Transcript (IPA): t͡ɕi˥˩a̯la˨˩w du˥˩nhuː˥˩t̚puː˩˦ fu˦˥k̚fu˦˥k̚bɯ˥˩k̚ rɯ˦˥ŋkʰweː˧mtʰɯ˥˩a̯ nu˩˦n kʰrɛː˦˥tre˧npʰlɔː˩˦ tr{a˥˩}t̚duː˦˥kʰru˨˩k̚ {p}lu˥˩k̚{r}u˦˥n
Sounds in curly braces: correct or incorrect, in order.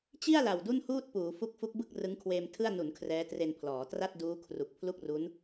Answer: correct, incorrect: pʰ, correct

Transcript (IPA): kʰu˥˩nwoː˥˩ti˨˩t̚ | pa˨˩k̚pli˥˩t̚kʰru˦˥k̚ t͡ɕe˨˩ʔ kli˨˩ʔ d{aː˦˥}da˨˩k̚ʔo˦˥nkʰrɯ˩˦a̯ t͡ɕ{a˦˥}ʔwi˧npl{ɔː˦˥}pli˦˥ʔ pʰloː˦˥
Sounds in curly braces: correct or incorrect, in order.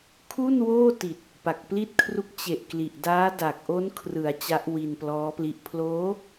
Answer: correct, correct, correct

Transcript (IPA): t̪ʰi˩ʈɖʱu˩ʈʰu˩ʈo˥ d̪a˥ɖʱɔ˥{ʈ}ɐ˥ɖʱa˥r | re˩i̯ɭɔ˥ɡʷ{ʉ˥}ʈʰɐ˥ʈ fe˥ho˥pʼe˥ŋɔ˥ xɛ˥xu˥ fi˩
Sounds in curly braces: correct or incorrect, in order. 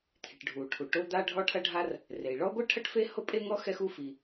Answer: incorrect: ʈʰ, incorrect: ɨ˥

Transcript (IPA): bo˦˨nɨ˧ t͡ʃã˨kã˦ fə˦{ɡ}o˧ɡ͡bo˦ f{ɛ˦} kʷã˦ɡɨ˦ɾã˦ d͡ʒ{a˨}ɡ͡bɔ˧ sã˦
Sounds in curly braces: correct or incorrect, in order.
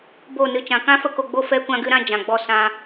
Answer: incorrect: k, correct, incorrect: ã˨

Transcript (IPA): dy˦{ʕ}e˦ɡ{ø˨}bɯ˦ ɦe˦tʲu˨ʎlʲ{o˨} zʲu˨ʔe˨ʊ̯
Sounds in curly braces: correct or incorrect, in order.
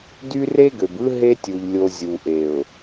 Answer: incorrect: r, correct, correct

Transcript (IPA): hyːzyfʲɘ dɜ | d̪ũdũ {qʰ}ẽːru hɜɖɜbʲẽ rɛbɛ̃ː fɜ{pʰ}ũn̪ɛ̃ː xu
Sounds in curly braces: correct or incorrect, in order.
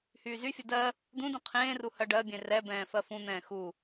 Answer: correct, incorrect: f

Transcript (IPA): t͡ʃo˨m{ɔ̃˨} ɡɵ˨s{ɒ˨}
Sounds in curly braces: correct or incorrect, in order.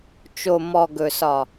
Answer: incorrect: ɔ˨, correct

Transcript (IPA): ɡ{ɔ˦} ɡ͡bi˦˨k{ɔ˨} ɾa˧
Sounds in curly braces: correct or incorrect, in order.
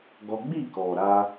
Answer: correct, correct

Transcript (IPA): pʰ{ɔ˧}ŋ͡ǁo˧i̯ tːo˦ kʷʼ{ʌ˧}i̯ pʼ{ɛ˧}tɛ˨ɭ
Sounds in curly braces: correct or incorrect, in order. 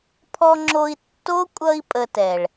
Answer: correct, correct, incorrect: ə˧

